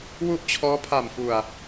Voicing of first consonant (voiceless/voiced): voiced